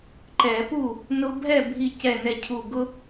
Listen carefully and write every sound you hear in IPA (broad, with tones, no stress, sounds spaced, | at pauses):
ǃ ɛ˧˩˧ p u˥˩ | n ʊ˦ bʱ ɛ˥˩ bʱ i˧˩ c ɛ˧˩ n ɛ˧˩ cʰ u˧˩ ɡ ʊ˦